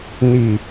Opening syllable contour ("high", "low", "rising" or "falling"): low